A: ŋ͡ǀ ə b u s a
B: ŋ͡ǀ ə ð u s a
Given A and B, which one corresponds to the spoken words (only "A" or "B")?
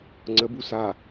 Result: A